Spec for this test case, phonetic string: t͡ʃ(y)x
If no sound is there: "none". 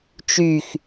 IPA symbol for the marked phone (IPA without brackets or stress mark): y